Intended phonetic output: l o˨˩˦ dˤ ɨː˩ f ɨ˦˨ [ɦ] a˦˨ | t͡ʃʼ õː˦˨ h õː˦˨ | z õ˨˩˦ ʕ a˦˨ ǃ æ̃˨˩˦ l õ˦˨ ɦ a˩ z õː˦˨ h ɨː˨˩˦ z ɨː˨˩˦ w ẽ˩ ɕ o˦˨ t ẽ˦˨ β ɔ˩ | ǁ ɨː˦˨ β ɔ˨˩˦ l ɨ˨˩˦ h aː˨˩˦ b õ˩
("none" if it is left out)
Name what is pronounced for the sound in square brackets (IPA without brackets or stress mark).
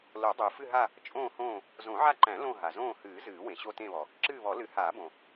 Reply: ɦ